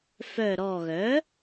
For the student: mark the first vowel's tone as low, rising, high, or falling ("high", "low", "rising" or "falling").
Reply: low